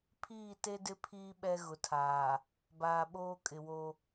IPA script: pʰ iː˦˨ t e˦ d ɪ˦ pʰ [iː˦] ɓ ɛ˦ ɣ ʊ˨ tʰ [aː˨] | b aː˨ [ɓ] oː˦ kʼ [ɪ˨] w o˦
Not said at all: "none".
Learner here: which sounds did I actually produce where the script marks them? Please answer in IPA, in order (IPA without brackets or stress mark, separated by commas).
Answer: iː˦, aː˨, ɓ, ɪ˨